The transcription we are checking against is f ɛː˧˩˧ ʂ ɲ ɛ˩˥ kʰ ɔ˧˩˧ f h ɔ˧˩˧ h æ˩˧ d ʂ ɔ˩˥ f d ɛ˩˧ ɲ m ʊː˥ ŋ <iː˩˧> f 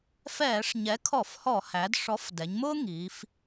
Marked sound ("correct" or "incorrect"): correct